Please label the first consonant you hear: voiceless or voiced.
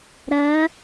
voiced